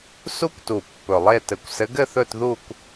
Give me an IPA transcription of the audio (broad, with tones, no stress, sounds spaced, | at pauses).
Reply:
s u˦˥ kʷ t u˨˩ pː ɵ˨˩ lˠ e˥˧ t ɘ˨˦ kʷ s ɘ˨˦ ɡ ɘ˥˧ θ ɵ˥˧ t ð u˥˧ kʷ